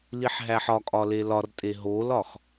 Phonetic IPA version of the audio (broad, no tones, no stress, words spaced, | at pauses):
liħɦæħɒkʼɒ lelɒrtʼe ɦolɒx